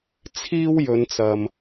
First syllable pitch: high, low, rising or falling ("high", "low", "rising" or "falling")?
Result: high